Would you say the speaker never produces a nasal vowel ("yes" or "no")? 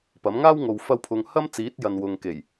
yes